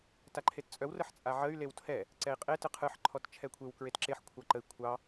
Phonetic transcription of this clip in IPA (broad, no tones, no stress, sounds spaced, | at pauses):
t a ǃʰ e t t͡sʼ œ w r ə ħ t͡sʼ a ʕ ə y̯ l e w tʰ ɛ | ǀ ɛ i̯ qʼ e t ɯ qʰ ɯ ħ ǃʰ ɔ t t͡ʃʰ ɛ kʷʰ e w k ɹ e t ǁ e ħ kʷʰ ɑ ǃ ə i̯ kʷʰ ɑ